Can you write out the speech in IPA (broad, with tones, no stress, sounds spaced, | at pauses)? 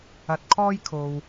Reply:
ɐ˨ t̚ kʰ ɔː˧ j kʰ o˧ w